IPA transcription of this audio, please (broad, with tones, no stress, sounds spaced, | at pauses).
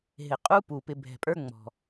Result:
ɦ ɪ˩ qʼ u˦ p u˩ p ɪ˨ bʱ ɛ̤˩ pʼ ə˞˦ ŋ͡m ɔ̤˩